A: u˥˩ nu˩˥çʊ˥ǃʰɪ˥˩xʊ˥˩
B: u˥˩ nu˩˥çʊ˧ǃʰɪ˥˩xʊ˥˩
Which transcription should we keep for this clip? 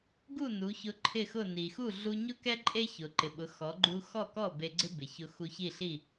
B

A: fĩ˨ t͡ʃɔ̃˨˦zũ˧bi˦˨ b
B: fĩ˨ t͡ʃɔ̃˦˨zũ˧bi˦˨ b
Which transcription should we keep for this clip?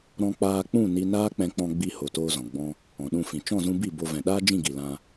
B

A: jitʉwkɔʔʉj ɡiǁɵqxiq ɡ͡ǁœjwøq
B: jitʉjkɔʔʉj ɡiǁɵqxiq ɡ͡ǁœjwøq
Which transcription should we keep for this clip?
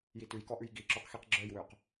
B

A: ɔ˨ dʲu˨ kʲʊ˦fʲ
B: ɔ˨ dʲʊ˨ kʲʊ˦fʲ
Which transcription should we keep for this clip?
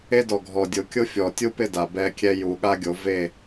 B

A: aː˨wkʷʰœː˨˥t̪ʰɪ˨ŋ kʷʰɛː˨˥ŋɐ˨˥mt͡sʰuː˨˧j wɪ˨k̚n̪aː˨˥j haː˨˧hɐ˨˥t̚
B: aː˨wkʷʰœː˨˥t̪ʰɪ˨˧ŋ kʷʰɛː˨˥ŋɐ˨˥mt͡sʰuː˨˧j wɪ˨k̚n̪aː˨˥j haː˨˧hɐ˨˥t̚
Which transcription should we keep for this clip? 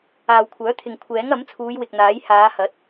A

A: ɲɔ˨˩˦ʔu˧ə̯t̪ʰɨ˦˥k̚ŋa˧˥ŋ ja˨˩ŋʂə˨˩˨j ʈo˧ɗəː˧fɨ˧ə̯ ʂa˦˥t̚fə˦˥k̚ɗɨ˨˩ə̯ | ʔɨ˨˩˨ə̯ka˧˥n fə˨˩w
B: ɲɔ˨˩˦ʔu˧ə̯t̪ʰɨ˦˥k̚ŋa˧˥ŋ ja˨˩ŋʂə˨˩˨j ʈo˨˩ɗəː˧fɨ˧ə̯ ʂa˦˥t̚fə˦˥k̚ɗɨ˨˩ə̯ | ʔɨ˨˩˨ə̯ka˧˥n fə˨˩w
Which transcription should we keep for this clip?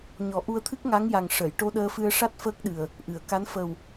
A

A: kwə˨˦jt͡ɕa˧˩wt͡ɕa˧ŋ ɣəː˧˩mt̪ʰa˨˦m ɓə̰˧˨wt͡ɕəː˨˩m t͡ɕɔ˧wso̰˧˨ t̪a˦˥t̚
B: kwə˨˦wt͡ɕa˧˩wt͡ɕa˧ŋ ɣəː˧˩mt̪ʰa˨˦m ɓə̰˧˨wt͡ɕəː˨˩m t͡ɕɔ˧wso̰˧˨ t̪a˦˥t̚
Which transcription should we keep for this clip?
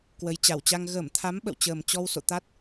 A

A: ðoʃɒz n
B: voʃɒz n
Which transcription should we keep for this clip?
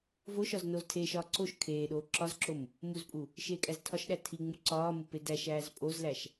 B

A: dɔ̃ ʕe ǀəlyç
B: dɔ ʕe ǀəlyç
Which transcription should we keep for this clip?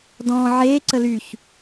A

